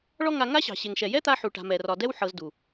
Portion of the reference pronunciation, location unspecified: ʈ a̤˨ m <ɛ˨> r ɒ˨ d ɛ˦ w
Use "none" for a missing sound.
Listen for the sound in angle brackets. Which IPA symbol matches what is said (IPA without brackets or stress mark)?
ɛ˨